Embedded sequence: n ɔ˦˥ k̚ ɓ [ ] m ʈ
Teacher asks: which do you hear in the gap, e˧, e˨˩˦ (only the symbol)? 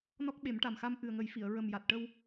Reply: e˨˩˦